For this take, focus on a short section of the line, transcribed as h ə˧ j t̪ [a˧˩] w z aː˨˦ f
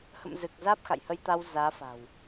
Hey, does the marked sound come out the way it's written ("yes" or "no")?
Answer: no